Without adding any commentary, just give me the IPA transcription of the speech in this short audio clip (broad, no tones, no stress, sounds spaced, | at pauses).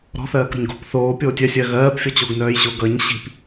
ɾ ɔ̤ θ ɜː k ɾ o̤ ɲ ɡ o̤ p θ oː pʲ oː tʲ œ sʲ ɜ ɣ ɜː p fʲ ɔ t͡ɕ o ɡ n œː j ɕ o ɡ ʌ ɲ ɕ i̤ p